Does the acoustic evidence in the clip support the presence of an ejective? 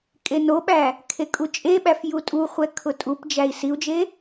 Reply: yes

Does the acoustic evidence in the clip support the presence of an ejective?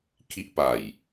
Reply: no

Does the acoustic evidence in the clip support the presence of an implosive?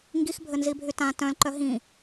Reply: no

